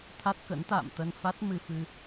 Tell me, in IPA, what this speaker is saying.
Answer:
t̪ʰ a˦˥ t̚ k ə̰˧˥ n t̪ a̰ː˧˨ m t̪ ə˧ n f a˦˥ t̚ m ɨ˧ f ɨ˧

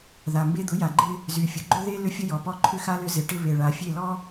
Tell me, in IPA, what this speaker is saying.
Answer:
ð a˨ m b e˦ d̪ ʊ˨˦ j a˨ ɡ͡ǃ ɪ˦ | z y˨ fʲ ʊ˨ ɡ͡ǃ ʏ˦ ð e˦ l ʏ˦ fʲ ə˦ j ɔ˨ p ɔ˦ ǃʰ ʏ˦ x a˦ l ʏ˦ z ɪ˨ ʈ ɪ˦ β e˨ ɭ a˨ fʲ e˦˨ l ɔ˦

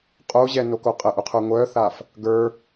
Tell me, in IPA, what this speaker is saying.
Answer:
qʼ o ʑ ɛ n o k o qʼ ə ʔ u qʰ ə˞ ŋʷ œ θ a f | ɡ ə˞

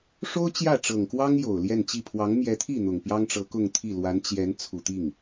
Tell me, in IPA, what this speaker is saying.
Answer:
ʂ o˥ ʊ̯ t͡ɕ j ä˥˩ ʈ͡ʂ ɤ˨˩ ŋ k w ɑ˥ ŋ j o˨˩ ʊ̯ l j ɛ˥˧ n t͡ɕ i˥˩ pʰ w ɑ˧˥ ŋ m j ɛ˧˥ t̪ʰ i˥˩ n̪ ʊ˨˩ ŋ p j ɑ˥ ŋ ʈ͡ʂ ɤ˧˥ k ʊ˥˧ ŋ t̪ʰ i˥˩ l w a˧˥ n t͡ɕ j ɛ˧˥ n t͡sʰ u˨˩ t̪ i˥˩ ŋ

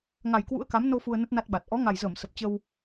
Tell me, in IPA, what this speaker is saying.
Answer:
ŋ a˨˩ j k w ṵ˧˥ ə̯ k a˨˦ m n o˧ f u˧ ə̯ n ə˦˥ t̚ n a˦˥ t̚ ɓ a˨˩ t̚ ʔ ɔ˨˦ ŋ a˨˩ j z əː˧˩ m s ə˨˩ p̚ t͡ɕ ə˧ w

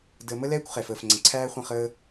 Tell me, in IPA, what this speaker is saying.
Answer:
d əː˨ m ə˦ l ɛː˦ kʷ χ ɛ˨ f əː˨ f ŋ͡ǀ ə̃˨ ǀʰ æː˦ χʷ ə̃˦˨ χ əː˦

